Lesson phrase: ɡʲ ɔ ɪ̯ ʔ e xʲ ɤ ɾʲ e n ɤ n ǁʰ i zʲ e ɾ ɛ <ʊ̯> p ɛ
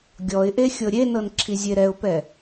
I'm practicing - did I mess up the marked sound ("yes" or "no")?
no